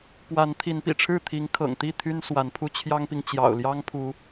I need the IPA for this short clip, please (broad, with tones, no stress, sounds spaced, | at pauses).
p w a˨˦ n t̪ʰ i˨˦ n p ḭ˨˩ ʈ͡ʂʰ ɻ̩˥˨ t̪ʰ i˨˦ ŋ kʰ ɤ̰˨˩ ŋ t̪ i˥˨ t̪ʰ y˦ n s w a˨˦ n pʰ u˦ t͡ɕʰ j ɑ˦ ŋ p i˨ ŋ t͡ɕ j ɑ̰˨˩ ʊ̯ l j ɑ˦ ŋ pʰ u˨˦